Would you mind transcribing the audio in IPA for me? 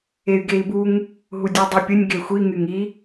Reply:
e y̯ ɡ e i̯ b u ŋ | ɦ u dʲ u dˤ y pʲ ə nʲ ɡ e xʷ i ŋ y ŋ i

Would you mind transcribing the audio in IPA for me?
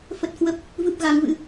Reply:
f ə˦˥ t̚ k w ə˦˥ p̚ | v ɨ˦˥ p̚ ɣ a˨˦ ŋ v ɨ̰˧˥

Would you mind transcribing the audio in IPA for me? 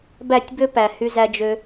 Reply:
b æ˦˨ tʲ b ø˦ p æ˨ h y˦ z æ˦ d͡ʒ ø˦

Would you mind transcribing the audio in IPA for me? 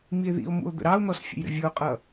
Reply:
m i e̯ ð ḭ o̯ m ṵ o̯ d̪ ə̰ ɾ ɑ o̯ n̪ ɔ s fʲ ə̰ j ɾ ə̰ vʲ ɔ o̯ qʼ ʌ

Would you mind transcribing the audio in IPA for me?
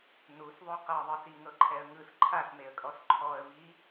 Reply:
n u s ðˤ u q ɤ ðˤ ɯ s i ŋ ɤ ǃʰ ɛ ə̯ ŋ ɯ s ǃʰ a s m e ə̯ kʼ ɔ s ǃʰ ɔ ə̯ v i

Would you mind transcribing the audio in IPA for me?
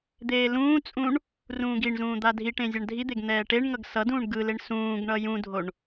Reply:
d̪ eː l ũː t͡sʼ ũ ɳ | r ũː ɡ i ɳ z ũː d̪ a dʱ i ʈ ẽ zʲ a ɳ dʱ i d̪ e ɡ n̪ ɛː ʈ e ɳ ŋ ʌ ɡ s ʌ d ũː ɳ ɡ ɯ l e ɳ s ũː ɡ ɳ ʌ j ũ dʱ o ɳ

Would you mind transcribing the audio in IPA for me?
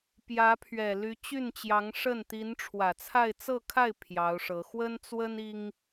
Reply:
p j ä˧˥ pʰ ɥ ɛ˨˩ l y˧˥ t͡ɕ y˥˩ n t͡ɕ j ɑ˧˥ ŋ ʂ ə˥˩ n t̪ i˧˥ n ʈ͡ʂʰ w ä˨˩ t͡sʰ a˥˧ ɪ̯ t͡s ɤ˥˧ kʰ a˥˩ ɪ̯ pʰ j ɑ˧˥ ʊ̯ ʂ ɤ˧˥ x w ə˥ n t͡s w ə˥ n i˥ ŋ

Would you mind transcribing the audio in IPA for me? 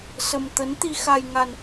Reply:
s ə˧ m t̪ ə˨˦ n t̪ i˧ x a˧ j ŋ a˧ n

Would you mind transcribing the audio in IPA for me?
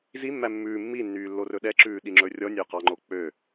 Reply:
z i mː æ mː ʉː mː i nː yː lː o r ɵ ɗ ɛ ǁ ʉː ɗ i ŋ͡ǁ ɵ rʲ ɔ nʲ ɵː q ɑ ŋ͡ǃ o k͡p ø

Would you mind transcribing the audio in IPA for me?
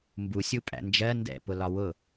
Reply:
m b u sʲ u pʼ æ̰ n d͡ʒ ɜ n d ɛ̰ p ʊ l ɒ w ʊ

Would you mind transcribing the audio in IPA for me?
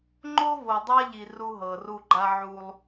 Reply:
ŋ͡ǃ o˦ v o˨ dˤ a˦ ʎ i˨ r u˦ ɦ ɤ˨ r u˦ ɡ͡ǃ a˦ ʕ u˦ lˠ

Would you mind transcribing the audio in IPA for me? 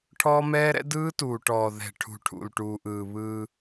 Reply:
ʈʰ ɔː˦ m ɛː˦ ɾ ɛ̰˦ d ɯː˦ t uː˨ ʈ ɔː˨ ð ɛ̤˨ ʈʰ ṳ˨ ʈʰ ṵ˨ l ʈ uː˨ ʔ ɯː˨ β ɯː˦

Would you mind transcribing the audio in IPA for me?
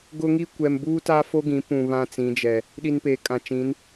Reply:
ɡ ʊ˦ ŋ i˦ kʷ ɛ˨ m b uː˦ t a˦ f o˦ ɡ ĩ˨˦ p ũ˨ β ã˦ t͡s ĩ˨˦ d͡ʒ ɛ˨ | ɗ i˨ n p eː˨ kʼ ã˨ t͡ʃ ĩ˨˦ n

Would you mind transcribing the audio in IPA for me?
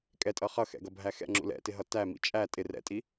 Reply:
kʼ ɛ tʼ ʌ χ ʌ x ɛ̰ ɡ ʌ bʱ æ x ɛ̰ ŋ͡ǁ ṵ l ɛ̰ t ɪ ɦ ʌ t æ m ḭ t͡ʃʼ æ tʼ ɪ r ɛ̰ tʼ i

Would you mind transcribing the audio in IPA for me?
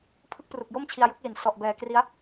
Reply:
pʰ ɯ˥˩ k̚ p r u˨˩ k̚ j o˥˩ m t͡ɕʰ i˧ a̯ j u˦˥ k̚ l i˩˦ n s ɔ˨˩ ʔ b ɛː˨˩ k r i˦˥ a̯

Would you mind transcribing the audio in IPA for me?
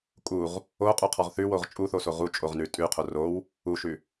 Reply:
kʼ u ʁ | o qʼ u qʰ ɔ ʁ θ ʉ w o ʁ t͡ʃʼ u θ o s o ʁ u t͡ʃʼ o ʁ n ʉ tʼ ʉ qʰ o r o w | u ʃ ʉ

